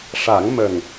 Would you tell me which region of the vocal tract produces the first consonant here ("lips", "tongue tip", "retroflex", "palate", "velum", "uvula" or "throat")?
retroflex